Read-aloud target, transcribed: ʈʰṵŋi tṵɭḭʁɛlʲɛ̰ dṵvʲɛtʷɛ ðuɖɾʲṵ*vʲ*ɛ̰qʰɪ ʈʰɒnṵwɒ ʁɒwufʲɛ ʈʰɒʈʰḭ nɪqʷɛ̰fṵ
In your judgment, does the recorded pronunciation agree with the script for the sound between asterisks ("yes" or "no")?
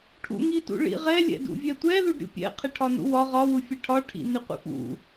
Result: no